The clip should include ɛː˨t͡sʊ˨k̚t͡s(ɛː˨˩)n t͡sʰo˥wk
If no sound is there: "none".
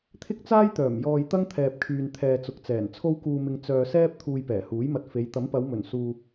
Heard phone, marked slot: ɛː˨˩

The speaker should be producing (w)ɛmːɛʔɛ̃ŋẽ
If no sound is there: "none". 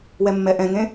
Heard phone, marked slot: w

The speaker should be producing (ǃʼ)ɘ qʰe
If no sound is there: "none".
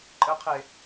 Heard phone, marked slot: ǃʼ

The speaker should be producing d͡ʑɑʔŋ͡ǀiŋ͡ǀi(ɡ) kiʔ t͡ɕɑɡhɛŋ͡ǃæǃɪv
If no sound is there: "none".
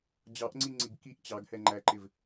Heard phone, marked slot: ɡ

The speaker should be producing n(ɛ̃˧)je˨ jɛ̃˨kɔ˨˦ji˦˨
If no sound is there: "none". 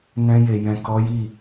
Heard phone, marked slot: ɛ̃˧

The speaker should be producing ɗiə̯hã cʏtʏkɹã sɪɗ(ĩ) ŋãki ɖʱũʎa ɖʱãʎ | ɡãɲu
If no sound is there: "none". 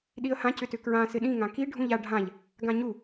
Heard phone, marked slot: ĩ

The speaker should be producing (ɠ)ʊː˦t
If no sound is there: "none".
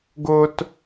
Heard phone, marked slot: ɡ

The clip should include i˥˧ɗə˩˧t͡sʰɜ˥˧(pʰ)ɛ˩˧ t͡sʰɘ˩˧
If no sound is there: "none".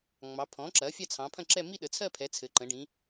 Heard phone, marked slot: pʰ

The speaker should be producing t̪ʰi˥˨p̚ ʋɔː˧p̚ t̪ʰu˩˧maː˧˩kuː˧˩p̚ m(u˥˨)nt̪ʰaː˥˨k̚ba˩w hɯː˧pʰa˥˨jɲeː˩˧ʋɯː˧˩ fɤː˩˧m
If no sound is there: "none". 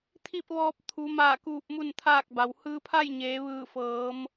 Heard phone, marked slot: u˥˨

